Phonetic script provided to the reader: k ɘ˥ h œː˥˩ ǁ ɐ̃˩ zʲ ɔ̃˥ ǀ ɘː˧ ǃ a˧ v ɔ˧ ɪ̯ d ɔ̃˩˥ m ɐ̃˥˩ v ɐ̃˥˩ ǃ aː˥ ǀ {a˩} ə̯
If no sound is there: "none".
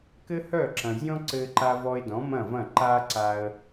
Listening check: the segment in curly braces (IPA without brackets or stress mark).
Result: a˧